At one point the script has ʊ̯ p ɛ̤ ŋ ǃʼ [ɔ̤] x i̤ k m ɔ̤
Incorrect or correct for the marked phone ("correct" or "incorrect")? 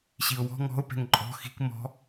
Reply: correct